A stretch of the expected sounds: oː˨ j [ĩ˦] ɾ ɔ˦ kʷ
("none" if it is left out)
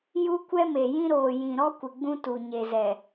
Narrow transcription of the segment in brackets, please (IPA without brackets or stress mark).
ĩ˨